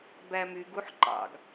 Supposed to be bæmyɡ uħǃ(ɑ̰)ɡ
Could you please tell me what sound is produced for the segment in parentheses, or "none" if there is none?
ɑ̰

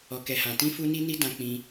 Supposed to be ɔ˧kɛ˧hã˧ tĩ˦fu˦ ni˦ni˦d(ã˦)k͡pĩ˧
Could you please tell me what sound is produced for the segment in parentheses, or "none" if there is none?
ã˧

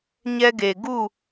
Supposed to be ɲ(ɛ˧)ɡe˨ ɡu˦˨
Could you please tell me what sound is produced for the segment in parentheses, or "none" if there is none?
ɛ˧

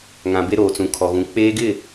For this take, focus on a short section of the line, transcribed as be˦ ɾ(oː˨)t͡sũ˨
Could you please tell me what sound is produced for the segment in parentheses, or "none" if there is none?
oː˨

